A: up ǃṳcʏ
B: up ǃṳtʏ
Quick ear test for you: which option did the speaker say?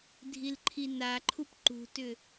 B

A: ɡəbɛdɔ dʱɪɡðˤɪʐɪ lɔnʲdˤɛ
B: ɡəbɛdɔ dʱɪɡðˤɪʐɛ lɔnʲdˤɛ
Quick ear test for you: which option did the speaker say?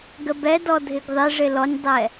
A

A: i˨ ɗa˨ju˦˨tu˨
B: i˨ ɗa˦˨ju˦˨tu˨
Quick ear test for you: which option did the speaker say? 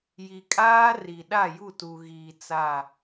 B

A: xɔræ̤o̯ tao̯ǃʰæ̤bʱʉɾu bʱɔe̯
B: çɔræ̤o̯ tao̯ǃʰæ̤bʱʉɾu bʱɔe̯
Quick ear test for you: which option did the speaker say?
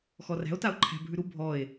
A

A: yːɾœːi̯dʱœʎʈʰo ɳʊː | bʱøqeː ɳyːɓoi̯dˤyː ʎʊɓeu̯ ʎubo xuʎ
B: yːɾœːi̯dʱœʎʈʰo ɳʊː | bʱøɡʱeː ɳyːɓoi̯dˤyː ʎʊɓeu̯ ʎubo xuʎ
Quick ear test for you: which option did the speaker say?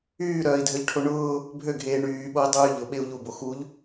B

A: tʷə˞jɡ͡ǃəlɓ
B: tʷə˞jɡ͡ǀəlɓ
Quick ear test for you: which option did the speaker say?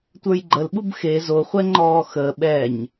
A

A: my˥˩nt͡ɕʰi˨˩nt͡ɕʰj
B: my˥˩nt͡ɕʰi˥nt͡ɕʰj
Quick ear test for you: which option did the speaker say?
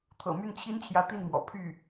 B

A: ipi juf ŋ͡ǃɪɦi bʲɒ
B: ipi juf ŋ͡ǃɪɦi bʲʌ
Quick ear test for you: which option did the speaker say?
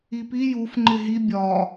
A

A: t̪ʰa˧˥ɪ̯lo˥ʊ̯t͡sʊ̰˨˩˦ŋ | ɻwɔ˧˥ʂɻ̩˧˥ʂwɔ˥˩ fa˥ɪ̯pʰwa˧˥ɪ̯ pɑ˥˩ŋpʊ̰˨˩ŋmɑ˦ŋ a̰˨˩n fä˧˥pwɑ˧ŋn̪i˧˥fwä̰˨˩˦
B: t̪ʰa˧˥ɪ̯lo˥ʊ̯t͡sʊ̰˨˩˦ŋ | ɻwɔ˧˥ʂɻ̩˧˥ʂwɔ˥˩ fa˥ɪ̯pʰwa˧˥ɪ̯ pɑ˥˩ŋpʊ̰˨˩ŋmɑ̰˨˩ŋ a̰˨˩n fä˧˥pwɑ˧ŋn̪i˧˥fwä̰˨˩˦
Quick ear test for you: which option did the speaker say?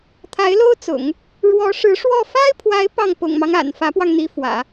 A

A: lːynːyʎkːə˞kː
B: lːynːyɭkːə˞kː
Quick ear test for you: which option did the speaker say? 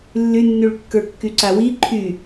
B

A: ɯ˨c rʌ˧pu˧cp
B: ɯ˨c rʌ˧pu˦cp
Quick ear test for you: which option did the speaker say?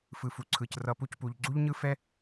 B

